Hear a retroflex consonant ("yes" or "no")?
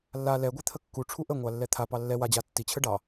yes